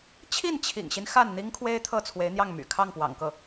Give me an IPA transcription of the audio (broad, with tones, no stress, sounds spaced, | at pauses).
t͡ɕʰ i˥˩ n t͡ɕʰ ḭ˨˩ ŋ ɕ i˦ n x a˥˩ n n̪ i˥ ŋ kʰ w e˥ ɪ̯ t̪ʰ ɤ˥˩ t͡sʰ w e˧˥ ɪ̯ n̪ j ɑ˥˩ ŋ m y̰˨˩ kʰ ɑ˥˩ ŋ p w ɑ̰˨˩ ŋ k ɤ˥˩